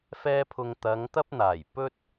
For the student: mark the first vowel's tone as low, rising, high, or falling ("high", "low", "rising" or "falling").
high